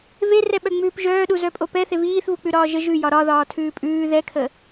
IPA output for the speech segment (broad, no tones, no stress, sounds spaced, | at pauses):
v e r ɛ ɓ œ ŋ͡m ʉː p ʒ œː ɗ u z œ pʼ o p ɛ θ e v iː θ v u k͡p ʉ ɾ ɒː ʒ ə ʒ ʉ j ɒ ɾ ɒ ð ɒː tʰ ʉː pʼ ʉː ð ɛ kʰ ə